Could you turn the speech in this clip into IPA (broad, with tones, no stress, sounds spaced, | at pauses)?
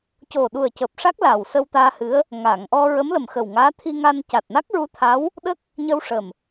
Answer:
c o˨˩ ɗ u˨˩ ə̯ c əː˨˩ p̚ ʂ a˦˥ k̚ l a˨˩ w s ə˧ w t̪ aː˧ h ɨ˧˥ ə̯ | ŋ a˨˩˨ ŋ ʔ ɔ˧ ɹ ə˧˥ m l ə˨˩ m x ə˨˩ w ŋ aː˧˥ t̪ʰ i˧ ŋ a˧ n c a˨˩ t̚ n a˦˥ k̚ ɹ u˧˥ t̪ʰ a˧˥ w | ɗ ə˦˥ k̚ | ɲ ə˧ w ʂ ə˨˩ m